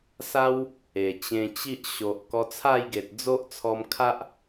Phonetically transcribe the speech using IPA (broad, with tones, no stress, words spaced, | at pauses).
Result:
sa˦w | e˨˩t͡ɕẽ˧t͡ɕi˦ʔ ɕo˨ʔ kɔ˧t͡sʰa˥˧jɡe˨t̚ d͡zo˦ʔt͡sʰɔ˧mkʰa˦ʔ